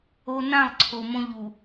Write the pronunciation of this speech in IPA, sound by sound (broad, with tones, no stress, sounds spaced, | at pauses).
o˦ n ã˦˨ lˠ ǀʰ o˨ m õ˦ ʎ u˨